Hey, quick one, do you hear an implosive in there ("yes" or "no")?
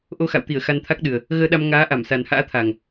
yes